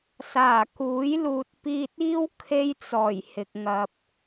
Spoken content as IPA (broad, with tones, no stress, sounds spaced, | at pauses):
s aː˨˩ k uː˨˥ j l uː˨ t̚ p iː˧ t̚ iː˥ w kʰ e˥ j t͡s ɔː˨˩ j h ɪ˨ k̚ ŋ ɐ˨ p̚